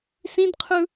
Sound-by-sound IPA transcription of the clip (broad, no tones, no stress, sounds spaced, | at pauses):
s ĩ d qʰ ɯ